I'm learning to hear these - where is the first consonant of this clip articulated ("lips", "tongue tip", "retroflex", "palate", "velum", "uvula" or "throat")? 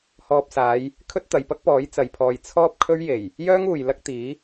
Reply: throat